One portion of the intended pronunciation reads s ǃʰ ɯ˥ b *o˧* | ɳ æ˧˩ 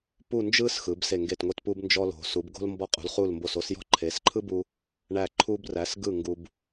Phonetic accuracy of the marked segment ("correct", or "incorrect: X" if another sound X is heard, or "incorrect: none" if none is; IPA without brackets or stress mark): incorrect: u˧